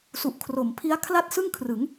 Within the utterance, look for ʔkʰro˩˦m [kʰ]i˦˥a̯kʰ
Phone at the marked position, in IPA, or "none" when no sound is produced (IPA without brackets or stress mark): pʰ